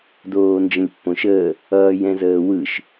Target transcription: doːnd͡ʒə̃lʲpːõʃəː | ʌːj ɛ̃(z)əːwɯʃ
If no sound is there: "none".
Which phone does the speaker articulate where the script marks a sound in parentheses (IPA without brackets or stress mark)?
z